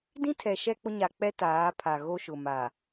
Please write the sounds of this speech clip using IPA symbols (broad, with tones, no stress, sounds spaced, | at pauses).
d ĩ˦ tʰ ɛ˨ ʃ ɛ˦ k͡p ʊ˦ ɲ a˨ k͡p ɛ˦ t aː˨˦ pʰ a˨ ɣ o˦ ʃ ʊ˨ m a˨